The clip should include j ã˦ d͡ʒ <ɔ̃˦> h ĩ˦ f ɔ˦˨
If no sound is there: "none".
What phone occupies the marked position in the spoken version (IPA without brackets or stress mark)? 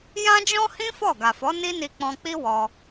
ɔ̃˦